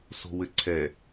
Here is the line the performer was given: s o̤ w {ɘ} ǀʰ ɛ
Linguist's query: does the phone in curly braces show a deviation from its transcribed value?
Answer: no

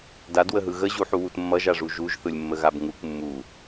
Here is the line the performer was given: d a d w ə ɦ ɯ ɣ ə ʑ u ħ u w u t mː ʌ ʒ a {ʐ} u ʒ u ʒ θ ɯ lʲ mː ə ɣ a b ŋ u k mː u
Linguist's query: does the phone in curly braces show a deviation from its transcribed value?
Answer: no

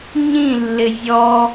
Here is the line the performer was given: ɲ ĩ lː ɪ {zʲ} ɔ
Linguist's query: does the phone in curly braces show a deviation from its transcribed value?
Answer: no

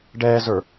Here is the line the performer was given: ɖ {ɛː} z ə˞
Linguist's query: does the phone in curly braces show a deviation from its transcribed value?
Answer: no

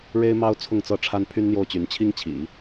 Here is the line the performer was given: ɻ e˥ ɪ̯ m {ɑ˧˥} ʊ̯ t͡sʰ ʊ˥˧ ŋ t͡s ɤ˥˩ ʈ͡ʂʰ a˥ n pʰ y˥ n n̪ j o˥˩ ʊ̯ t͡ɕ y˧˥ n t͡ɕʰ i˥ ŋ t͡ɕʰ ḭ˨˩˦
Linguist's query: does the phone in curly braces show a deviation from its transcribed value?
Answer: yes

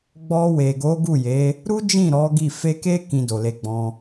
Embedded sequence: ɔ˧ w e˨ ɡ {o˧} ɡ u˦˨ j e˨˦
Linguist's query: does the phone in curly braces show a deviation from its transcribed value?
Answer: yes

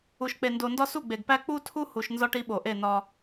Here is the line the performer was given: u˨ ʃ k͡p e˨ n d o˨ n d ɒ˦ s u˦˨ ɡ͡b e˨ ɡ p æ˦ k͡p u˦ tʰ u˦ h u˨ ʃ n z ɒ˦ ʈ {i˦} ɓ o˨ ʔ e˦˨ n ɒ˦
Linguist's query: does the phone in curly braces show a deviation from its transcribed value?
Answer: no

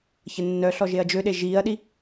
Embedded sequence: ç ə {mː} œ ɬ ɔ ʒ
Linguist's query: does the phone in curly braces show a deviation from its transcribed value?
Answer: yes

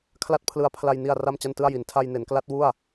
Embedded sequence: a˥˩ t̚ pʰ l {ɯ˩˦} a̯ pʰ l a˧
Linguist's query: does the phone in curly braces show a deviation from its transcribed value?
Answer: yes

